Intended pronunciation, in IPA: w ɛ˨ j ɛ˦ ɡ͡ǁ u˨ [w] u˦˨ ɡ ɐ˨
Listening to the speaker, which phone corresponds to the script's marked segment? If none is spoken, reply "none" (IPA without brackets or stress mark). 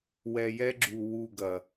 w